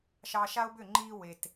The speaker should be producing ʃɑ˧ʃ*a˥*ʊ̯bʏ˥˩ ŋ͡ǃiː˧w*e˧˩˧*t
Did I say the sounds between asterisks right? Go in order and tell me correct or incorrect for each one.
correct, incorrect: e˩

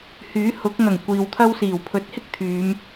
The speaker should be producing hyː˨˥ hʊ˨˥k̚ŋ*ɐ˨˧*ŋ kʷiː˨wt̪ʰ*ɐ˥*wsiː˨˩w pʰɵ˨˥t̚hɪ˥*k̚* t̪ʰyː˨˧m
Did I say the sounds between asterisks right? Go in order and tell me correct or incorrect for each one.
incorrect: ɐ˨˩, correct, correct

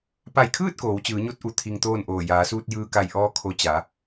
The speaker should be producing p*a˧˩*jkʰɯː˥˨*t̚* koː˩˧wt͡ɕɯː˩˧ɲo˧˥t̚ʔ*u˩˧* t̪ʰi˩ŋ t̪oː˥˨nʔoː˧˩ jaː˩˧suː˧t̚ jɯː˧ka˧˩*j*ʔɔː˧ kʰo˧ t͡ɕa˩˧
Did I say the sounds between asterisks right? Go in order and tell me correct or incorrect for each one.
correct, correct, correct, correct

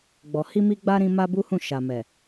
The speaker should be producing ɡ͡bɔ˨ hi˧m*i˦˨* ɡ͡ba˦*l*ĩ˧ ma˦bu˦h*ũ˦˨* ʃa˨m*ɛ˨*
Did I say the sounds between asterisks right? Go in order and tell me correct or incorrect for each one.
incorrect: i˧, incorrect: ɾ, correct, correct

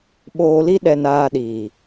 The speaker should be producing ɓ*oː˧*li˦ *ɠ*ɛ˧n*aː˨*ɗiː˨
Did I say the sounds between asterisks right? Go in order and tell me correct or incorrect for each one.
correct, incorrect: ɗ, incorrect: aː˧

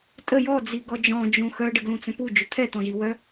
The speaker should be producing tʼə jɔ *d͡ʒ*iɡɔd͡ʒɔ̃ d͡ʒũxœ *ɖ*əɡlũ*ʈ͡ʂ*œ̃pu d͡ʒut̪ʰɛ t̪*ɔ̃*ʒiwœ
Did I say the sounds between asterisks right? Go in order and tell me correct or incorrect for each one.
incorrect: d͡z, correct, incorrect: t͡s, correct

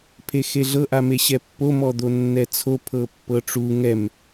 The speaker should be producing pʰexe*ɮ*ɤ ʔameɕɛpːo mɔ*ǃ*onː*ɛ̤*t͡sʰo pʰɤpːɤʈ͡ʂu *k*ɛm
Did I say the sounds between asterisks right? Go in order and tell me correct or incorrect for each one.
correct, incorrect: d̪, incorrect: ɛ, incorrect: ŋ

